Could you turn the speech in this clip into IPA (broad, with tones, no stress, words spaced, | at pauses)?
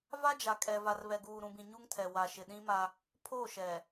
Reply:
va˦d͡ʒa˨kʼɛ˨va˨r βɛ˨ɡuː˨ɾũ˨bĩ˨ ɲu˦ŋtʰɛ˨ wa˨ʃɪ˨ɗĩ˦ma˦ | pʰo˦˨ʃɛ˨